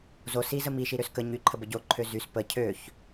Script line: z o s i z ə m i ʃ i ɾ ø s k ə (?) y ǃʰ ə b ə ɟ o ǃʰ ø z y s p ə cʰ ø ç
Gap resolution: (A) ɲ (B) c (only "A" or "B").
A